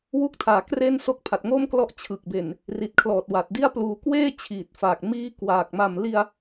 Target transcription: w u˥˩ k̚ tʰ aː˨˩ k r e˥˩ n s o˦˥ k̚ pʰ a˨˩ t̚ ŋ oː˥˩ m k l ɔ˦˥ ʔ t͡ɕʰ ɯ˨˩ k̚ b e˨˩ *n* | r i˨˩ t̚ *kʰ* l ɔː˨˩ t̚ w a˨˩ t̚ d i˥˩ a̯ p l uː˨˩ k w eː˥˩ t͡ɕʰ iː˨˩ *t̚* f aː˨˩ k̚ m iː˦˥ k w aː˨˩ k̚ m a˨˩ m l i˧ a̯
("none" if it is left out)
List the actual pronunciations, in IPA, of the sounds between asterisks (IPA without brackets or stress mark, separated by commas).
n, kʰ, t̚